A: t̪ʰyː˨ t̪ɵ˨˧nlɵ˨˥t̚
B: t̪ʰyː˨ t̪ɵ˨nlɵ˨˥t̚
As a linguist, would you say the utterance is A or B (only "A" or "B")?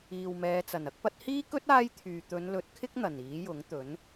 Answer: A